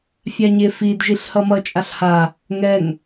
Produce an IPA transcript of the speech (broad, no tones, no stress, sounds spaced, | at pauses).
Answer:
fʲ a ɲ e f i d ʒ i ɬ h ʌ m ʌ t͡ʃʼ a ɬ h a | ŋ ɛ ŋ